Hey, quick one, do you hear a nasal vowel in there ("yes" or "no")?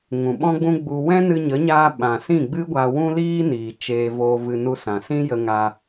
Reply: yes